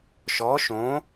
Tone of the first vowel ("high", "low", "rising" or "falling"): rising